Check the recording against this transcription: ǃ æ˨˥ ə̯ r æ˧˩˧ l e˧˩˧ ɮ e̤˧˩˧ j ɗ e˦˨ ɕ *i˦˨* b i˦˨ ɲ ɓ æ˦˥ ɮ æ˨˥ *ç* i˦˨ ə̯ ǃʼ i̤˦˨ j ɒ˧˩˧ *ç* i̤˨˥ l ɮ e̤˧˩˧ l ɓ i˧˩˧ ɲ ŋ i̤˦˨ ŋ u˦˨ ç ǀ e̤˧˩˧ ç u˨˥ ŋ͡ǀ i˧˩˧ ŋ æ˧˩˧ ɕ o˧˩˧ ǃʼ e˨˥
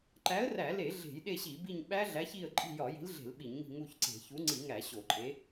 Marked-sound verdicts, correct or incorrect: incorrect: i˧˩˧, correct, incorrect: j

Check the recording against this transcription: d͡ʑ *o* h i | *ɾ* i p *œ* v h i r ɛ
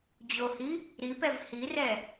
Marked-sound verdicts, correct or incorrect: correct, correct, incorrect: ɛ

